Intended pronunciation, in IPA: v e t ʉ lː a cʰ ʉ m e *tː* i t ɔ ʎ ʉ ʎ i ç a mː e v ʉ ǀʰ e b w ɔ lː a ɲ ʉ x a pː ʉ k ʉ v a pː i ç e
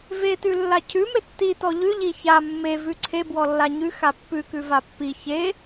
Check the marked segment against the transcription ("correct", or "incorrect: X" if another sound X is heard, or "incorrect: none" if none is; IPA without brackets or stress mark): correct